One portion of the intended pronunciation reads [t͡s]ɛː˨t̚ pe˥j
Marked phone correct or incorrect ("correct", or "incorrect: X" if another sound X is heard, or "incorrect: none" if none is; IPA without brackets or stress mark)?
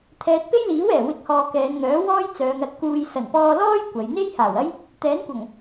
incorrect: t̪ʰ